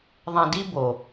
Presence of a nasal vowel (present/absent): present